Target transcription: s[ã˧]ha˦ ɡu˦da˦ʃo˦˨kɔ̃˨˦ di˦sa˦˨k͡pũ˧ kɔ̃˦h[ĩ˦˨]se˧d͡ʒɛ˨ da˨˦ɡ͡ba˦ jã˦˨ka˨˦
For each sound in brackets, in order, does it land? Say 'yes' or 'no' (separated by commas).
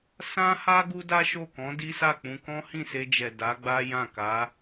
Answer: no, yes